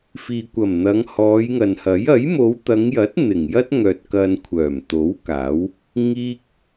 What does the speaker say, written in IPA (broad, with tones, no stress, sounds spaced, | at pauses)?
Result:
f iː˨ kʷ ɐ˨˩ m n̪ ɐ˨˧ ŋ h ɔː˨˧ j ŋ ɐ˨ n h ɐ˨˥ j ɐ˨˥ j m o˨˧ w t̪ ɐ˨˧ ŋ j ɐ˨˥ t̚ n̪ ɪ˨˩ ŋ j ɐ˥ t̚ ŋ œː˨ t̚ k ɐ˧ n kʷʰ œː˨˩ m t̪ o˨˥ w k aː˨˥ w | ŋ iː˥ k̚